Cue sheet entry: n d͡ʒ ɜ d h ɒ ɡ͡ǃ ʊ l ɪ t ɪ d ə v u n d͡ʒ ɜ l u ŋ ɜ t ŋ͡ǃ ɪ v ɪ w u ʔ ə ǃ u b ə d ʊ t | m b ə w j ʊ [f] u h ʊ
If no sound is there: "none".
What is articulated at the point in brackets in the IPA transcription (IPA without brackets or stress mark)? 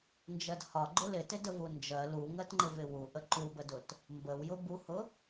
b